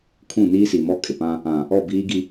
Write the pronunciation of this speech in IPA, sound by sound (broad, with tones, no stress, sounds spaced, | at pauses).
kʰ ũ˦˨ n iː˦ s i˨ m ɔ˦ kʼ ɪ˨ p ã˦ | ã˨ | ɔ˦˨ b iː˦ ɡ i˦